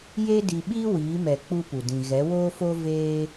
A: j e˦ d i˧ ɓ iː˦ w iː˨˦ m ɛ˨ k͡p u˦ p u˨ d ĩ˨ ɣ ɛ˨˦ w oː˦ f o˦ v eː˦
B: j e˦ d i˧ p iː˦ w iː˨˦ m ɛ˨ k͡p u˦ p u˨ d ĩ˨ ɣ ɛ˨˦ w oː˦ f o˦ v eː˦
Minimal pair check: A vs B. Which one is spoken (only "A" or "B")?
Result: A